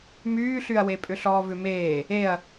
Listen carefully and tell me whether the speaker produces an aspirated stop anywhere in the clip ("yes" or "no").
no